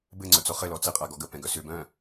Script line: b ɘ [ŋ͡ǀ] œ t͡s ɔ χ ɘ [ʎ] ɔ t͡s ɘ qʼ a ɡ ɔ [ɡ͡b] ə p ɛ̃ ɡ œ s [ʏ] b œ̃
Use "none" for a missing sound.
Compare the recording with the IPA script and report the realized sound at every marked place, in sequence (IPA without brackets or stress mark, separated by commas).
ŋ͡ǀ, l, ɡ, ʏ